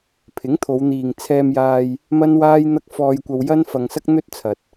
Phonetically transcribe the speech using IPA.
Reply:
pʰ ɪ˨˥ ŋ t̪ʰ o˨˧ w n̪ iː˨ ŋ t͡sʰ ɛː˧ m j aː˧ j | m ɐ˥ n w aː˥ j n̪ ɐ˥ k̚ f ɔː˧ j kʷ ɐ˧ w j ɐ˥ n f ɐ˧ ŋ s ɐ˥ k̚ n̪ ɵ˥ t̚ t͡sʰ ɐ˨ t̚

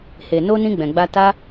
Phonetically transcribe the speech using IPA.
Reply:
h e˨ n o˧ n ĩ˧ ɡ͡b ɛ̃˨ ɡ͡b a˧ t a˦

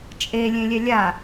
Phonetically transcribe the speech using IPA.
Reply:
t͡ʃʼ e lʲ ẽ lʲ ɛ lʲ a

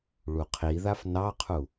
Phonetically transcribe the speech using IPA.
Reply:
ɭ u qʰ i ð a f n ɑ qʰ u

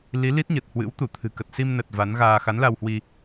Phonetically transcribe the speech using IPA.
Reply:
l i˨˦ l i˦˥ t̚ ɲ ə˨˩ t̚ h w ɨ̰˧˥ w t̪ u˧˩ t̪ʰ ɨ̤˨˩ k ə˨˩ t̚ s i˧ m n ə˨˩ t̚ v a˨˦ n ɣ aː˧ x a˨˦ n l a˧ w h w i˧

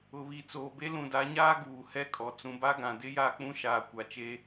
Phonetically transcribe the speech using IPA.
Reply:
ʊ˨ β i˨ t͡s oː˨ b e˦ l ũ˨ d a˨˦ ɲ aː˦ ɡ uː˨ h ɛ˦ kʼ ɔ˨ t͡s ũ˨ b a˦ ɡ ã˨ d ɪ˦ j a˦˨ k͡p ũ˦ ʃ aː˨ kʷ a˨ t͡ʃ e˦

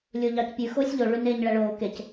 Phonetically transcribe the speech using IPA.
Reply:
lʲ o ʎ ɑ c pʲ ʉ x oː sʲ ʎ o ɭ ʉ n eː ɲ ɭ æ ɭ oː k e c

